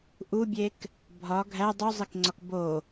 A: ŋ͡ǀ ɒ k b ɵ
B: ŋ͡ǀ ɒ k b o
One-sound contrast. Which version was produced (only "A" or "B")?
B